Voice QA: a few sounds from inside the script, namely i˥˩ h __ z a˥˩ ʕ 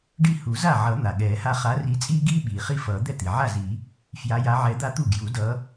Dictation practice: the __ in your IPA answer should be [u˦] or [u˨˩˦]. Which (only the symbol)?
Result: u˨˩˦